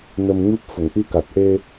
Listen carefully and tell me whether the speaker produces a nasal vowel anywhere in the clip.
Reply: no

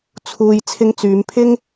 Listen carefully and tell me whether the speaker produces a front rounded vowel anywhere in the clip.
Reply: yes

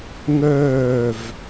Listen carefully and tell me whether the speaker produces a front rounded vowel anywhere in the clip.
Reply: yes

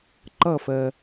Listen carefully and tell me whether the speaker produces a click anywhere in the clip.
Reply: yes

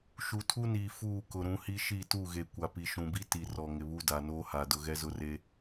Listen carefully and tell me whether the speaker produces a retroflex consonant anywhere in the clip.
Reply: no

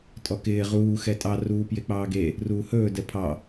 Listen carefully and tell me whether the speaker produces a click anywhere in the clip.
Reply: no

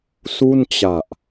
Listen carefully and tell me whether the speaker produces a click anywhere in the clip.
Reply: no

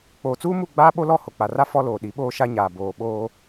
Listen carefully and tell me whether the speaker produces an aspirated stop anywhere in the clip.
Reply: no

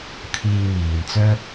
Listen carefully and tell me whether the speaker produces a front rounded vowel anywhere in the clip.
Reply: yes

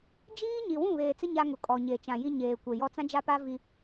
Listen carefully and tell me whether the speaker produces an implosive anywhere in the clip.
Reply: no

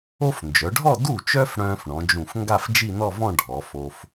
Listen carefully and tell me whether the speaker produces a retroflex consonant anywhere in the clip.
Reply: yes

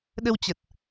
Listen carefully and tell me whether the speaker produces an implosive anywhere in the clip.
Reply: yes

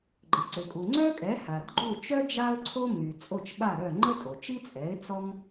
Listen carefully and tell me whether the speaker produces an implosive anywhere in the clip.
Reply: yes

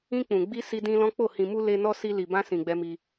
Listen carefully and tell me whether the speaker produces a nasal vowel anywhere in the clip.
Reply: yes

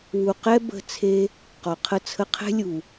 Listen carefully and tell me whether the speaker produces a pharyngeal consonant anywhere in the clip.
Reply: no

